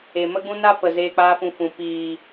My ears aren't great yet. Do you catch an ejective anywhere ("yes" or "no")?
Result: no